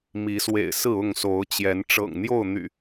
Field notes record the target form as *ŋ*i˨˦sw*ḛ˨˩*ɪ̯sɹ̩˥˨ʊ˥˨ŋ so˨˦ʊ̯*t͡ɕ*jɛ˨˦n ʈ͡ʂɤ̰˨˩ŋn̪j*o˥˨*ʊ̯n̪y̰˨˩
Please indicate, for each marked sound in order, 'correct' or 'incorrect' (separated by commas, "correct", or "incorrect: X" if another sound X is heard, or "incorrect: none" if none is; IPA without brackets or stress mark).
incorrect: m, correct, correct, correct